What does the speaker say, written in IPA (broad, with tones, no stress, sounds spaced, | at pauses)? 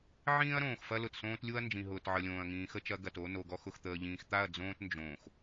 ʕ ĩː˦ ɐ̯ ɾ õː˨ x f ɐ˦ l ʊ˨ t s õː˦ t lʲ u˦ ɐ̯ n d͡ʒ ĩ˨ ɦ ʊː˨ t ʕ ə˨ lʲ õː˨ ɐ̯ ŋ ĩː˨ x ə˦ t͡ʃ ɐ˨˦ ɡ ɐ˨ t o˦ n o˨ ɡ ɔ˦ x ʊ˨ x t̪ əː˨ ʎ ĩː˨ x t̪ a˦˨ ɐ̯ d͡z õː˦ t n d͡ʒ õː˨ x